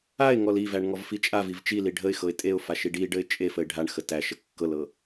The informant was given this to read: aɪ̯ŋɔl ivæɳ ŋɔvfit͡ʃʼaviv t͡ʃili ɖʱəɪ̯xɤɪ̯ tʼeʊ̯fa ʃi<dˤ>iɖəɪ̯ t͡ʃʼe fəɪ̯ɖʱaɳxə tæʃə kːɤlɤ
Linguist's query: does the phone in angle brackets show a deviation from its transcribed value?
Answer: yes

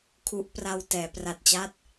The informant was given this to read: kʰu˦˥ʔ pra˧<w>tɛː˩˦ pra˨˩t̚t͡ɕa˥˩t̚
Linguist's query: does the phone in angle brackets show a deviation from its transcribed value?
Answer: no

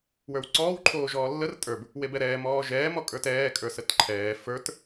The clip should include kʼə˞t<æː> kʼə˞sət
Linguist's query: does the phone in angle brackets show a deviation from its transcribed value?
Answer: yes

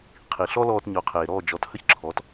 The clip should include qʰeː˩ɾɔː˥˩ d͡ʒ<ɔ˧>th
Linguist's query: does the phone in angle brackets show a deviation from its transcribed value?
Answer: yes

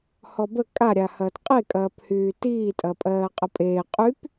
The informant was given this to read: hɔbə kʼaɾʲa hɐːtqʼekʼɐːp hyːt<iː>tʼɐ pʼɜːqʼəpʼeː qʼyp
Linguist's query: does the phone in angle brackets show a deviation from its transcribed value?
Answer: no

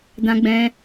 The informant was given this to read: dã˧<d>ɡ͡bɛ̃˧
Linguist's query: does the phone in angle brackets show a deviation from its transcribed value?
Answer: yes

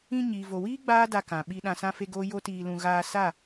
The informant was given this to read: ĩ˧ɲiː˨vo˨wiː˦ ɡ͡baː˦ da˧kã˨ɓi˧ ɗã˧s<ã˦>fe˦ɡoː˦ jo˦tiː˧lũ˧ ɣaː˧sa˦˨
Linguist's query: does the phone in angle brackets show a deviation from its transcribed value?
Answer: no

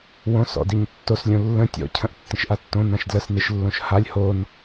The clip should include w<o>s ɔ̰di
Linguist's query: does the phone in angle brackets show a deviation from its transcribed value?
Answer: yes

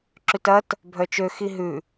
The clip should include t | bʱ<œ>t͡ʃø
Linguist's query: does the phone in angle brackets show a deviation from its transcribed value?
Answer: no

